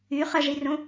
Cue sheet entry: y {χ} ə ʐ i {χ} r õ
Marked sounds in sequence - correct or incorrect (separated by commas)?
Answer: correct, incorrect